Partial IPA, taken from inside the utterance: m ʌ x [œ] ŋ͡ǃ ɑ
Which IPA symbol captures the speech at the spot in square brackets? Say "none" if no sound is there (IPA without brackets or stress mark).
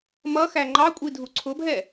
æ